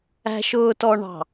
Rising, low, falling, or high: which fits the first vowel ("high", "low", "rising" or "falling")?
low